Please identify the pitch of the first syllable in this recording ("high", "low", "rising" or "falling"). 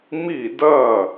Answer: falling